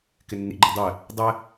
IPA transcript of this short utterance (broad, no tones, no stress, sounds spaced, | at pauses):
k ɪ nː ḭ ɡ͡ǃ ʌ dˤ ɛ | dˤ ɛ